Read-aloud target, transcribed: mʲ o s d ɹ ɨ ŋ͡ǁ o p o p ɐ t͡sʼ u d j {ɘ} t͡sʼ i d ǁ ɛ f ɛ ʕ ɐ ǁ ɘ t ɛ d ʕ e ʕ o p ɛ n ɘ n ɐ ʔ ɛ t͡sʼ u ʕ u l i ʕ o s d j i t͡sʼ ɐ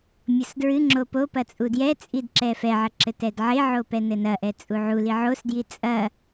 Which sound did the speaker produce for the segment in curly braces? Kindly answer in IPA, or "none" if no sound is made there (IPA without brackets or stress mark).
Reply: ɛ